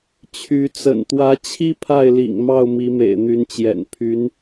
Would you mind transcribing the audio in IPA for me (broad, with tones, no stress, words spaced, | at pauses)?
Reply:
t͡ɕʰy˧˥ t͡sə̰˨˩nt̪wä˧˥t͡ɕʰi˥ pʰa˥˩ɪ̯lḭ˨˩ŋmɑ˥˩ʊ̯ mi˧˥mḛ˨˩ɪ̯n̪y˧˥nt͡ɕjɛ̰˨˩n pʰy˧˥n